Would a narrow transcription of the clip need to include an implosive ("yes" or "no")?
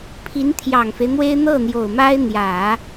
no